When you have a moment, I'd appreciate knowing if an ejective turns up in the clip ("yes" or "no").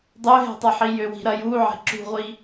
no